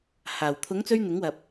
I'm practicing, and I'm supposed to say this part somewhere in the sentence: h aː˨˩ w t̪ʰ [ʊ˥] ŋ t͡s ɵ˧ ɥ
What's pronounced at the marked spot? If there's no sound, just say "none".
ʊ˨˥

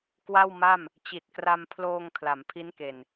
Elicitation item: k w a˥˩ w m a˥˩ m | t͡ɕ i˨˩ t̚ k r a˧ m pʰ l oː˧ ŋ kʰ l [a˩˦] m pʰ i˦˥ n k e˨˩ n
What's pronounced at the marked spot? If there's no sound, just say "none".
a˩˦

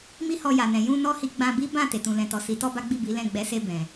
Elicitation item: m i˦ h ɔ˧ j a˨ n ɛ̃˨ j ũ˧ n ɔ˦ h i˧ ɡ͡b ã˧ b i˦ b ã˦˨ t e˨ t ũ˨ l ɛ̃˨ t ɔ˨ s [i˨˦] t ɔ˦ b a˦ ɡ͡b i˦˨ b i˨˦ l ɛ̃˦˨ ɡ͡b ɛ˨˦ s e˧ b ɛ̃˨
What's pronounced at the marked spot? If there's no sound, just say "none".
i˨˦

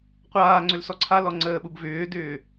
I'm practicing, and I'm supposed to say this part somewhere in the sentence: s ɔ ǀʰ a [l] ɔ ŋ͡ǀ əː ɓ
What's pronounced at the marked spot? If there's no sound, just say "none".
l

